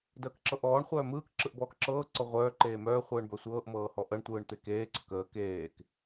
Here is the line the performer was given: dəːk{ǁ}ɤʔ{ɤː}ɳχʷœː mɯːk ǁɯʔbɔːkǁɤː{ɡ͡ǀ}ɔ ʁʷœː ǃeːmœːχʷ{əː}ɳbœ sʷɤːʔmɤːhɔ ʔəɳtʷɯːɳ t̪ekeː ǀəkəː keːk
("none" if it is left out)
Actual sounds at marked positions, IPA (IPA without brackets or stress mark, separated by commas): ǁ, ɔː, ǀ, ɯː